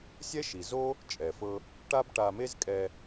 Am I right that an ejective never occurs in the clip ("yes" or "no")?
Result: no